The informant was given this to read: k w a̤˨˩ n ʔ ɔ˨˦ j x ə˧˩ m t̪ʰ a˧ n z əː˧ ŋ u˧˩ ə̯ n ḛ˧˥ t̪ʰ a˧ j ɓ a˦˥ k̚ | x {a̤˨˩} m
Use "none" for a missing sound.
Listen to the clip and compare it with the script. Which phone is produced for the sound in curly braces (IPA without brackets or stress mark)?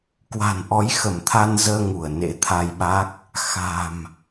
a̤˨˩